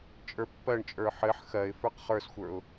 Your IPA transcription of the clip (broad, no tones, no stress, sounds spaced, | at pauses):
t͡ʃʼ ə˞ pː ɜ ɳ t͡ʃʼ ə˞ ħ ɘ ħ x ɜ ɪ̯ f ə˞ q χ ə˞ s xʷ ə˞ ʊ̯